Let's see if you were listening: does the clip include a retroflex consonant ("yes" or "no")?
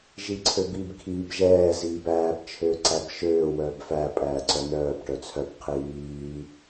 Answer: yes